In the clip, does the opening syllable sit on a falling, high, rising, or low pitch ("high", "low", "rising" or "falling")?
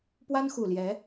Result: high